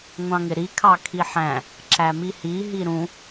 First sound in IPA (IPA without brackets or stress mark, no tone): ŋʷ